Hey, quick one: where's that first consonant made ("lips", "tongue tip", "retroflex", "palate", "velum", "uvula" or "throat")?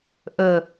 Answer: throat